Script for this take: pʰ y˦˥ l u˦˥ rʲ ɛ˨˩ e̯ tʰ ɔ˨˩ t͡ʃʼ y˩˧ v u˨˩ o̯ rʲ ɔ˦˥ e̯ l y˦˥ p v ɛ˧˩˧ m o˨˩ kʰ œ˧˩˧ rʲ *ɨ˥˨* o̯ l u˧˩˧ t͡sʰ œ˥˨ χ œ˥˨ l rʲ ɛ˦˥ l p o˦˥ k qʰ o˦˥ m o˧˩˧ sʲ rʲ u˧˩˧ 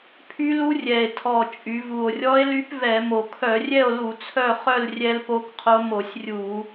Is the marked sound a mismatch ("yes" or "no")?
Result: yes